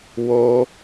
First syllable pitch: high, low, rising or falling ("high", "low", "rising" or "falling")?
high